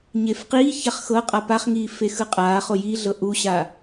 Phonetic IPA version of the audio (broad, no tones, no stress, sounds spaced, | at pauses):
ɲ e f q iː ç a χ x ɤ qʼ a p a χ ŋ iː f e x ɯ qʼ aː χ o j i ɮ ɤ ʔ u ɕ a